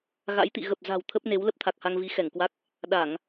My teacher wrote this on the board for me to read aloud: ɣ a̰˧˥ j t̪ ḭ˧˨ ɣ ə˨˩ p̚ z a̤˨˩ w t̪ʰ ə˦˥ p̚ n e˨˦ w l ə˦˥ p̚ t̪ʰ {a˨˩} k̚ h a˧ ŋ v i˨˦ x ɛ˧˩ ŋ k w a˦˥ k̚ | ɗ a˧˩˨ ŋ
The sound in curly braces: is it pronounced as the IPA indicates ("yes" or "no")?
yes